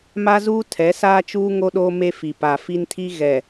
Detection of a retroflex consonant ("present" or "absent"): absent